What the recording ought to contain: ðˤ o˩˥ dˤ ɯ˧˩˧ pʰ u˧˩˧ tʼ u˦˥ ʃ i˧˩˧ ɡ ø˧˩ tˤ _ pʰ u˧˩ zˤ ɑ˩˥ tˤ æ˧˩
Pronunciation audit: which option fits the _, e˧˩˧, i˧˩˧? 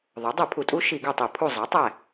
i˧˩˧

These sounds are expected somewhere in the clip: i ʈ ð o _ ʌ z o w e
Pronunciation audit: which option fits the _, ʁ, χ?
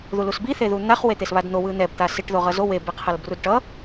ʁ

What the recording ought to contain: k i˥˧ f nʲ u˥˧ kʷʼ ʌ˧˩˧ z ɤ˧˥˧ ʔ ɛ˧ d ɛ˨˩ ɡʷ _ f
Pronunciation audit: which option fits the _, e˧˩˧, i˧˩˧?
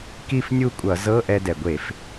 e˧˩˧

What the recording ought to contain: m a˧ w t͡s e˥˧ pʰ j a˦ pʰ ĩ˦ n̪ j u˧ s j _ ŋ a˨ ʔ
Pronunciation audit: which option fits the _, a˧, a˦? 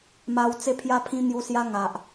a˦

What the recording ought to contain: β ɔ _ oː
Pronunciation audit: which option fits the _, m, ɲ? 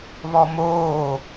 m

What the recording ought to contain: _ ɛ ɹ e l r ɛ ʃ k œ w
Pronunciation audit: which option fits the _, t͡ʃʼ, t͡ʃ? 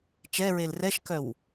t͡ʃ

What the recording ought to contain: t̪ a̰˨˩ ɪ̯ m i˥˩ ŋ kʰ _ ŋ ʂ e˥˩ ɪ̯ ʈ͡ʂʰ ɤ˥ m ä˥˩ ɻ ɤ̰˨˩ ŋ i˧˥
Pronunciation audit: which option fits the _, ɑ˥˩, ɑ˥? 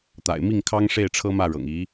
ɑ˥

